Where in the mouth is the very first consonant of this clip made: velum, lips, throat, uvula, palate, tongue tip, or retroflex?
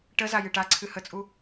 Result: retroflex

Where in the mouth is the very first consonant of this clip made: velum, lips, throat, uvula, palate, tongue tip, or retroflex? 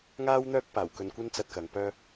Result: velum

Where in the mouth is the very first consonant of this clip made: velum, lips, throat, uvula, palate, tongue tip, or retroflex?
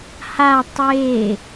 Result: throat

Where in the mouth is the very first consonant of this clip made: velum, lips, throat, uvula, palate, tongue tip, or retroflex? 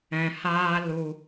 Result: throat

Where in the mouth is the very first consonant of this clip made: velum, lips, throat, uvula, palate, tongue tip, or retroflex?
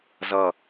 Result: tongue tip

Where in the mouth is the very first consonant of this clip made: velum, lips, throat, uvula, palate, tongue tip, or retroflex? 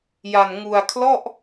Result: palate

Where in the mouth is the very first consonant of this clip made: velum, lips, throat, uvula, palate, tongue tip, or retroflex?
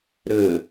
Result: tongue tip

